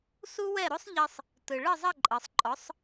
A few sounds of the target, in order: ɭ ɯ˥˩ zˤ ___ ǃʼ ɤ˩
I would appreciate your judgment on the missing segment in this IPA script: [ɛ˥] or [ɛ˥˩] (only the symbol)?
ɛ˥˩